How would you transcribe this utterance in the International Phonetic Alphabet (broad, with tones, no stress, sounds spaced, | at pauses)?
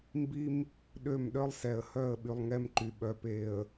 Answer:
m b i˦ m | ɗ ø˦˨ m ɗ œ˦ lˠ s ɛ˨ ə̯ h œ˦˨ ə̯ ɓ y˨ lˠ ŋ ɛ˦ m ǃ y˨ ɓ œ˨ p e˨ ə̯